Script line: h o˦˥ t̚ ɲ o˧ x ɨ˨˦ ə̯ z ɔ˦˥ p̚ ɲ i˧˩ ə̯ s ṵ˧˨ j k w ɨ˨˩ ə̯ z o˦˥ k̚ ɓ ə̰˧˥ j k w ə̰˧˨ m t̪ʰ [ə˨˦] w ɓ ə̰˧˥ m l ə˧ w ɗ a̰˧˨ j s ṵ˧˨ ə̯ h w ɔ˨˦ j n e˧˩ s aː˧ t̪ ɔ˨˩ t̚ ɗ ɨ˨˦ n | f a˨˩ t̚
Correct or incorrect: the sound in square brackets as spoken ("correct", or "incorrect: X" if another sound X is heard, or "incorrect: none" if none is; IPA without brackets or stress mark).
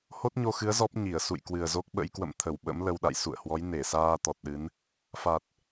incorrect: ə˧˩